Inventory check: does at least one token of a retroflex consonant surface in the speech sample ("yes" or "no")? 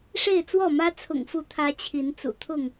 yes